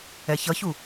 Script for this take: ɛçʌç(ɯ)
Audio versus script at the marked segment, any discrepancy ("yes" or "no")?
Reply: yes